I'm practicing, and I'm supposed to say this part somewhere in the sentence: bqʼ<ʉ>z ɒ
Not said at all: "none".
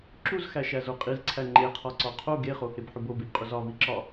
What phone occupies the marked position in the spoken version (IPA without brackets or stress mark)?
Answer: u